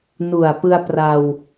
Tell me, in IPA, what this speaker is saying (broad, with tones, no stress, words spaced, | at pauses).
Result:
nu˨˩a̯pɯ˧a̯ pra˧w